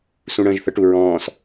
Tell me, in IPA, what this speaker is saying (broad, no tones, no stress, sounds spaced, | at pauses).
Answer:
s ũ ɽ ə̃ː ʒ θ ə ʈ u ɹ ɔ̃ː s